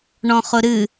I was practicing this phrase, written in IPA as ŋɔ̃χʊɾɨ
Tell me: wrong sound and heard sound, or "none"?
ŋ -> ɳ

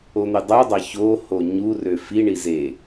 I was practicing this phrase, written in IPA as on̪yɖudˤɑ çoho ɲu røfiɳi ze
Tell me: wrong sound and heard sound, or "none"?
ɖ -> dˤ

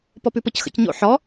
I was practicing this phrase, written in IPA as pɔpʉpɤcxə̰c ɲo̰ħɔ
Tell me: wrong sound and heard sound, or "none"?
none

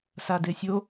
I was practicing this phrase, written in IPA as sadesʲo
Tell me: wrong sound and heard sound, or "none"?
none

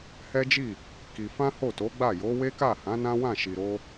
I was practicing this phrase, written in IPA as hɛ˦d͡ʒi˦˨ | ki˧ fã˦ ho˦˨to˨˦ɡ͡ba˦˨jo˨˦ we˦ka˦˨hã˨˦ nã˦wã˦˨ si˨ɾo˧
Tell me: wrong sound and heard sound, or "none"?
s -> ʃ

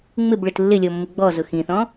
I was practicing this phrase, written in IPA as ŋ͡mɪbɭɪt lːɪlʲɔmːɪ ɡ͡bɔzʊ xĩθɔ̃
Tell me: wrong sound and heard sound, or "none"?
none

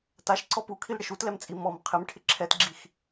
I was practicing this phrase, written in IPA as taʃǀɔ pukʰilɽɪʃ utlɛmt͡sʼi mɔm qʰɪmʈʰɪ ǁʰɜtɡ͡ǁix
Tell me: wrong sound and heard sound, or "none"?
ɜ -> ɛ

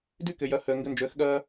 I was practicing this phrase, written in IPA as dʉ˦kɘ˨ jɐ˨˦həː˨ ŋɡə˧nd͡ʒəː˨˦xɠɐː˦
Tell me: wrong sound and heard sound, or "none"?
none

